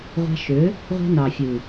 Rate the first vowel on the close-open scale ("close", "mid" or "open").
open